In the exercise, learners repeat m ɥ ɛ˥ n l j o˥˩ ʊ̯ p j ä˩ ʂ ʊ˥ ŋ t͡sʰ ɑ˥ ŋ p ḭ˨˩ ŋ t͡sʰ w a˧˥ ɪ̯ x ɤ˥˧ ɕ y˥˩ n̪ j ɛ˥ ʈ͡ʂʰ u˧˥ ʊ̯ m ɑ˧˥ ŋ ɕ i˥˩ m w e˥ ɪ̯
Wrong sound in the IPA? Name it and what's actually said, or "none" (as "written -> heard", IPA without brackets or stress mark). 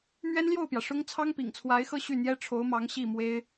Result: u˧˥ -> o˧˥